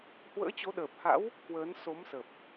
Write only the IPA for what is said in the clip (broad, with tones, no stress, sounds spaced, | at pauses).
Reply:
h w ə̰ː˧˥ t͡ɕ o˨˦ ɗ əː˨˩ p̚ h a̰˧˥ w | k w əː˨˦ n s o˨˦ m s ə˨˩ p̚